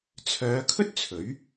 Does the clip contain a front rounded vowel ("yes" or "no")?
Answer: yes